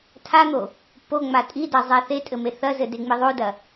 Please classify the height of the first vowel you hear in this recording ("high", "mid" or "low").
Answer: low